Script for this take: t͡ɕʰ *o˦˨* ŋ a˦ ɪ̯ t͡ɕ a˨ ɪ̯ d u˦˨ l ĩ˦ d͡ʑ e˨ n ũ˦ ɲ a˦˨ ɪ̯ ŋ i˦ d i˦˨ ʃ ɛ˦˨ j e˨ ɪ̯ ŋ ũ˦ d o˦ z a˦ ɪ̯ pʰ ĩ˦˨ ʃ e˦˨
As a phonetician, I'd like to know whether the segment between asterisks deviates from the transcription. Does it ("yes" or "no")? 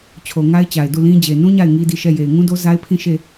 yes